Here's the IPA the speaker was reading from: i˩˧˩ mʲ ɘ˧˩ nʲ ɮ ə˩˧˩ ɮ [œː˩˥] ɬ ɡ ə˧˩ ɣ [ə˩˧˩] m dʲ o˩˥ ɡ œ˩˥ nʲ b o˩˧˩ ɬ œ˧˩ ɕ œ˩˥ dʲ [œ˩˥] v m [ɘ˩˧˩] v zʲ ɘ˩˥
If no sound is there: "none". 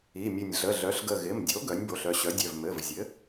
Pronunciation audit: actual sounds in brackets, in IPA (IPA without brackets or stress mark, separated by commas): œ˩˥, ɪ˩˧˩, œ˩˧˩, ɘ˩˧˩